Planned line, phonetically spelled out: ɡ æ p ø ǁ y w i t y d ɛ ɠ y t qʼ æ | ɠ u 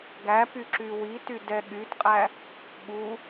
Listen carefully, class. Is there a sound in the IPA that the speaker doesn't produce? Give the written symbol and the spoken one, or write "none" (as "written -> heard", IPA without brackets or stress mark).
ø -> y